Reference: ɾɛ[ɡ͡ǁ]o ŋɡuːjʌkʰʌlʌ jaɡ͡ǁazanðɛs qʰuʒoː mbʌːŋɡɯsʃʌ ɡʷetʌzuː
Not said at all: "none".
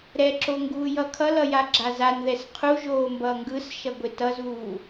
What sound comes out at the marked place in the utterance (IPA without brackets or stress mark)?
ǁ